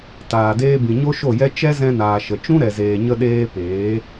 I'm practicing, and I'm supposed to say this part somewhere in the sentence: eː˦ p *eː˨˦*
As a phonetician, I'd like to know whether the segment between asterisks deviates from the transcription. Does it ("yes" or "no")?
no